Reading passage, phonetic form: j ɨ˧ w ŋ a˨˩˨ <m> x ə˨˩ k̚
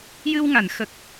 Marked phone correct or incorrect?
incorrect